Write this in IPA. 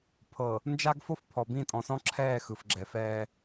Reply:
pʰɤ˨ | nd͡ʒa˦ɡfo˦fpʰɔ˨bĩ˦˨ tʼɔ̃˨sɔ̃˦ǁʰɛː˦˨ xɯ˨fɡ͡ǁɛ˨fɛː˦

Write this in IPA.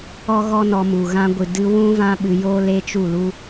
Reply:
ɔ˦ɣɔ˦nɔ˧mu˨ ɣã˧ɡʷɨ˨dɨ˧ wũ˦vã˦ɓɨ˧ joː˦le˦t͡ʃu˦˨lu˦

